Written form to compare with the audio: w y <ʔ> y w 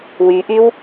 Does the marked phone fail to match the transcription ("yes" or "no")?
no